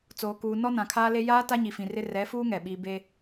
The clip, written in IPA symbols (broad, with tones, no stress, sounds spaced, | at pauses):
t͡s oː˨ k uː˨ n ɔ˦ n ã˨ kʰ aː˦ l e˦ j aː˦ t a˦ ɲ i˨ f ĩ˨ r ɪ˦ r ɛ˨˦ f uː˦ ŋ ɛ˨ ɓ iː˦ b e˦